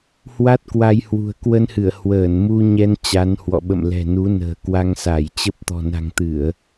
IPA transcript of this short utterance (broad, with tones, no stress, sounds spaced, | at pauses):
h w a˦˥ t̚ k w a˧ j h w ṳ˨˩ ə̯ k w ə˧ n h ɨ˧˩ ə̯ h w əː˧˩ n m u˧ ɲ ɛ˧ n t͡ɕ a˨˦ n h w ɔ̰˧˨ ɓ ə̰˧˨ m l ɛ̤˨˩ n u˨˦ n ə̤ː˨˩ k w a˧ ŋ s a˧˩ j t͡ɕ ə˦˥ p̚ t̪ ɔ̤˨˩ n a̤˨˩ ŋ t̪ ɨ˧˩˨ ə̯